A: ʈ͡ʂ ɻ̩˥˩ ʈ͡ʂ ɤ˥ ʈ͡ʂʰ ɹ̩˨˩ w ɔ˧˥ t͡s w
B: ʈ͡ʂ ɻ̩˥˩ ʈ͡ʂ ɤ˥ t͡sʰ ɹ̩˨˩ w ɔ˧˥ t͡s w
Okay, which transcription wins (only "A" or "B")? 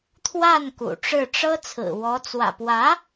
B